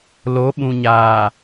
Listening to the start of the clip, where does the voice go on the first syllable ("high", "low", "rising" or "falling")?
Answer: rising